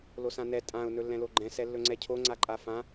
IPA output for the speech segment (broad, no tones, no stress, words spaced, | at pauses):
losãnɛ tʼãʊ̯ nɵlːɛ̃loɡ͡ǃɛ̃ sɛlːɵŋ͡ǀɛcʰo ŋ͡ǀaǃʼafã